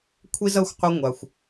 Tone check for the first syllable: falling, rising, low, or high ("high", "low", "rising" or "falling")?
high